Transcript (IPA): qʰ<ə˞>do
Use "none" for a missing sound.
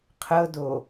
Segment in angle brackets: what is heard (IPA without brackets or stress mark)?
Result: ɤ